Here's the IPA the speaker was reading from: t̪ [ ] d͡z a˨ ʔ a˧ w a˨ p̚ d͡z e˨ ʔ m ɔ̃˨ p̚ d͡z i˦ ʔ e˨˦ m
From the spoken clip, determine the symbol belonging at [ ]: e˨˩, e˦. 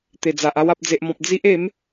e˨˩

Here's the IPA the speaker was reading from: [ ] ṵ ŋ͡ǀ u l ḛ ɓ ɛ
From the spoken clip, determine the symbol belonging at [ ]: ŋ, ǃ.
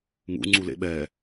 ŋ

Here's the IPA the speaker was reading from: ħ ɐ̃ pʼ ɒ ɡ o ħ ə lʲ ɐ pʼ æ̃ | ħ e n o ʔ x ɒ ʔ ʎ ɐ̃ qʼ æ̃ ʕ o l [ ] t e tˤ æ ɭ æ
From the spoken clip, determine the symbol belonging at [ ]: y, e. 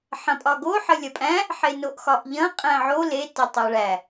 e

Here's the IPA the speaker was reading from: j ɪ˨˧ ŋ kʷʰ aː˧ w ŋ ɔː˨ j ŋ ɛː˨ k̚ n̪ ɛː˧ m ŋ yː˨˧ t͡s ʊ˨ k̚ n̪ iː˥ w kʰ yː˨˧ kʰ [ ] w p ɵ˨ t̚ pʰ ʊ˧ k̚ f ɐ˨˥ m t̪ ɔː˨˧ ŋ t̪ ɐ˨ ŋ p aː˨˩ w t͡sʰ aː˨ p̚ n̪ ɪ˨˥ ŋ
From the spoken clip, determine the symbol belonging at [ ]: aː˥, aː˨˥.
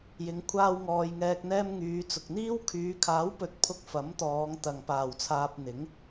aː˨˥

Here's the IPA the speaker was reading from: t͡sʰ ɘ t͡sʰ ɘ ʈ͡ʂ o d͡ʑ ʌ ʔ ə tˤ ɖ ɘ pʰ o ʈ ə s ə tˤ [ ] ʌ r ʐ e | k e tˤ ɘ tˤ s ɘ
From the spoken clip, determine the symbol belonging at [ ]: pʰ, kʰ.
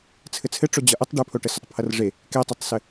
pʰ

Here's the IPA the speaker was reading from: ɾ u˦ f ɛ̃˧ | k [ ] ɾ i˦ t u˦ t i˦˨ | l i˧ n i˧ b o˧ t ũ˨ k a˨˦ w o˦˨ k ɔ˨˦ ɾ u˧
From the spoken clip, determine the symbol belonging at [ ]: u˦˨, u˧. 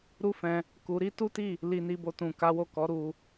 u˧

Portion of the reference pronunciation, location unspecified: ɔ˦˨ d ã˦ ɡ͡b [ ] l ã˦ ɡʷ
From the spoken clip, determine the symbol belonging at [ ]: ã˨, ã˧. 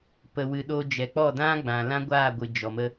ã˨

